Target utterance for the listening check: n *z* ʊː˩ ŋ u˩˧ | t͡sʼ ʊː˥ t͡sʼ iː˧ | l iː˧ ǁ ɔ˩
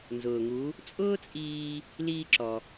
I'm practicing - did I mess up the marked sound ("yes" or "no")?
no